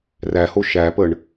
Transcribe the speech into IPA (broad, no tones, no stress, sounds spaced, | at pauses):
r æ h o ʃ æ p ə ɳ